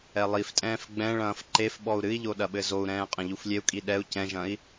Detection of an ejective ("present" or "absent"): present